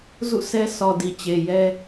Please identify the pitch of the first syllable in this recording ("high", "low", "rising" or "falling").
falling